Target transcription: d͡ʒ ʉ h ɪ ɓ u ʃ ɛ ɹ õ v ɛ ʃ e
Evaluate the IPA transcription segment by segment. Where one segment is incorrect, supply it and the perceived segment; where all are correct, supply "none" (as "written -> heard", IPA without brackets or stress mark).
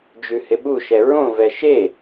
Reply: none